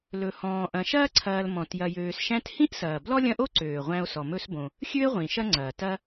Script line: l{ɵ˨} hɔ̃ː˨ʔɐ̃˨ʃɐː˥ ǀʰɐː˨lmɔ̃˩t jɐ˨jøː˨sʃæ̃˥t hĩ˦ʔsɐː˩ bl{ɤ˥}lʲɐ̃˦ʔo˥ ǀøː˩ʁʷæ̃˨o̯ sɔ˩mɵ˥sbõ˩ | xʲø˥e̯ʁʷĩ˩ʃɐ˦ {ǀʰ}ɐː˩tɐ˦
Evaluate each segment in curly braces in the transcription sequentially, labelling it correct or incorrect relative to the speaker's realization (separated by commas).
correct, incorrect, incorrect